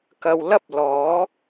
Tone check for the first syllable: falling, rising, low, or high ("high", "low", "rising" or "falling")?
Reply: low